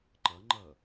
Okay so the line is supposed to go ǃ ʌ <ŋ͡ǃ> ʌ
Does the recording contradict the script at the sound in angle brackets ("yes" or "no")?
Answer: no